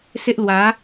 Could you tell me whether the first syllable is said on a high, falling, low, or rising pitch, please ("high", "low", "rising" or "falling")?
high